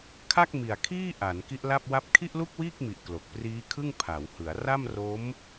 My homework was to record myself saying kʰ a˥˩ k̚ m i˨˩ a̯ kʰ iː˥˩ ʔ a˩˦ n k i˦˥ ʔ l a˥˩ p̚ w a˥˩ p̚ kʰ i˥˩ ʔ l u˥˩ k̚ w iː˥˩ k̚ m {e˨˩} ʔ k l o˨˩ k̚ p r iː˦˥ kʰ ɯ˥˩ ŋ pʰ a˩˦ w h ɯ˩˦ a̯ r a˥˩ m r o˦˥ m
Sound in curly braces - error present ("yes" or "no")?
yes